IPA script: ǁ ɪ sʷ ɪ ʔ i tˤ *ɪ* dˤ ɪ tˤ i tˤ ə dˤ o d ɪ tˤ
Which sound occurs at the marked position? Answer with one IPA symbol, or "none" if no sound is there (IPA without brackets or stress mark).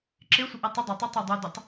ə